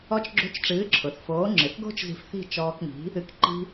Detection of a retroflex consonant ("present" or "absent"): present